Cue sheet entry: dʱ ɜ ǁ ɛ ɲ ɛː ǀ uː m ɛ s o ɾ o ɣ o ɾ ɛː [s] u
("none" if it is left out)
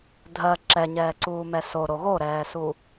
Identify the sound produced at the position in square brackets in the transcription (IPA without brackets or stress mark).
s